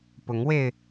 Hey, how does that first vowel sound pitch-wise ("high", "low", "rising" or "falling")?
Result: rising